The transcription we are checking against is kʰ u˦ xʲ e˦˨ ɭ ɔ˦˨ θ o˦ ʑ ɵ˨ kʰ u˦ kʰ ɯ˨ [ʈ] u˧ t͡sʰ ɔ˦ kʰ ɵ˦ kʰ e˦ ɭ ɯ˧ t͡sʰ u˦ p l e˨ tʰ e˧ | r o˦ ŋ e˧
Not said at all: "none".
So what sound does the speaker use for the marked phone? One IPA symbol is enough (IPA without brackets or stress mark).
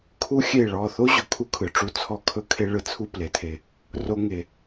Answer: ʈ͡ʂ